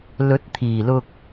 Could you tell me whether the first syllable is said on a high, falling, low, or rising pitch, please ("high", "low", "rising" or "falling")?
rising